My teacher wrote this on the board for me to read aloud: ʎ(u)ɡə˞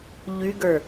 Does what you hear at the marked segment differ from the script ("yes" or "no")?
yes